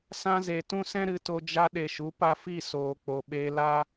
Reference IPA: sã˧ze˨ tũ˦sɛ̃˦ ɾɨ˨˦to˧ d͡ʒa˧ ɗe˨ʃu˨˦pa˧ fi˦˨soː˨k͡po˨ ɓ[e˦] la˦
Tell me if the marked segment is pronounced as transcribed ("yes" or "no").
no